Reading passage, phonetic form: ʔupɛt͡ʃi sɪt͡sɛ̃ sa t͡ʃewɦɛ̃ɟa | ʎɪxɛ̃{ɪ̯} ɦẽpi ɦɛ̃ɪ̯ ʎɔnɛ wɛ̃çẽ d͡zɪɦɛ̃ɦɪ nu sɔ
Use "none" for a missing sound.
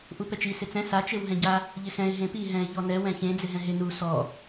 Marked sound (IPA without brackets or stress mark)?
ɪ̯